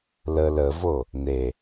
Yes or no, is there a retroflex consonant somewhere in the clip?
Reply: no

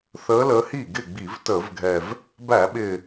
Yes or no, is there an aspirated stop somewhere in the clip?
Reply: no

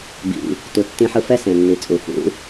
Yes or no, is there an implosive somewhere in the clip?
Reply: no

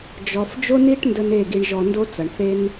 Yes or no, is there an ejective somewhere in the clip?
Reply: no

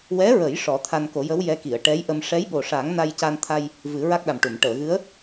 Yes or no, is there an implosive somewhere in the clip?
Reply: yes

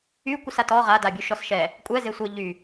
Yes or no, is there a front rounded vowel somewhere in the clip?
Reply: yes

